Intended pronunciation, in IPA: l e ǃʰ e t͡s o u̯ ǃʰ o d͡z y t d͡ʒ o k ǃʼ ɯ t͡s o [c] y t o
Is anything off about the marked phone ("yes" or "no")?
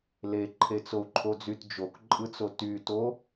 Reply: yes